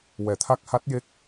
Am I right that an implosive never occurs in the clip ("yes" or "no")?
yes